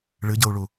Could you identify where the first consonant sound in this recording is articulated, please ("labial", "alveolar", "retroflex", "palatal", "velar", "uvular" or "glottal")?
retroflex